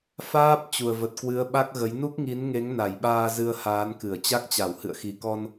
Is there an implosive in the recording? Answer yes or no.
yes